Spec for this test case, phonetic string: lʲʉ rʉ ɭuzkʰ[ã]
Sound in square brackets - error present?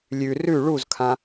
no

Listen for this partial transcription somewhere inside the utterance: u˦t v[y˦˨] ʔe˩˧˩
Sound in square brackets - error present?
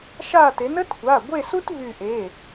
no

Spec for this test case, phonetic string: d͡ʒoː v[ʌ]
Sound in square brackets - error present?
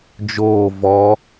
yes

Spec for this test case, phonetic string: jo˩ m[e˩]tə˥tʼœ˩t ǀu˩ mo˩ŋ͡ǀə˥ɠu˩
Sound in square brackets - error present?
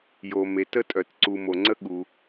no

